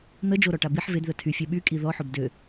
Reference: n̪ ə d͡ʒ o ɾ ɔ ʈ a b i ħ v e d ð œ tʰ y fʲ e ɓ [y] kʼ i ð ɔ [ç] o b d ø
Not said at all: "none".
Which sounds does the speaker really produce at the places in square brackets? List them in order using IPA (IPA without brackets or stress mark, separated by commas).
y, ħ